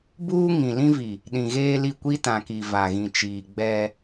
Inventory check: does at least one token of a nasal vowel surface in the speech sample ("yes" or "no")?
yes